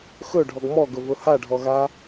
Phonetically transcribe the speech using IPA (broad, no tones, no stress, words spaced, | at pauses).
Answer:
xɵɖʱɔɡ mɔɡɵvɵ haɖʱɔɣa